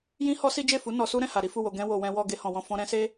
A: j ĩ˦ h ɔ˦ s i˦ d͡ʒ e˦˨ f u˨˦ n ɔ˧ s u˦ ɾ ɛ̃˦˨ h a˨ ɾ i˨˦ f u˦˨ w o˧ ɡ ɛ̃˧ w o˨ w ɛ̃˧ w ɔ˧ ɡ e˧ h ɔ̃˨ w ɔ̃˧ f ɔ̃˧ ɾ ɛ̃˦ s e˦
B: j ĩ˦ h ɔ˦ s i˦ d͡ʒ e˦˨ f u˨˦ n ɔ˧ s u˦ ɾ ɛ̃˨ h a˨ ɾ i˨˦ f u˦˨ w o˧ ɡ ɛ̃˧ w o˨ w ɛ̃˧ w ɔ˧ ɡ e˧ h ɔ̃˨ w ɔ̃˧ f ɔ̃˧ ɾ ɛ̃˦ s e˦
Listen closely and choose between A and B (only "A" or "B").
A